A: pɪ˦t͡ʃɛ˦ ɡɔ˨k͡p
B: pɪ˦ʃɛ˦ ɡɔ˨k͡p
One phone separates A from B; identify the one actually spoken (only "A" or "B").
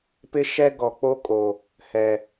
B